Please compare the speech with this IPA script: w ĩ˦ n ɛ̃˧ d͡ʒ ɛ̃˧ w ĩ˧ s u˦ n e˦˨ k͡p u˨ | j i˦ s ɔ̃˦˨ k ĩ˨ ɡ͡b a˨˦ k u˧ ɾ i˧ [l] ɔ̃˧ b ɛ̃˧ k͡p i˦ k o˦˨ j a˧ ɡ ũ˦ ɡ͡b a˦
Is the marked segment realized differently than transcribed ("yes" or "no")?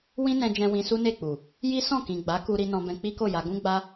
yes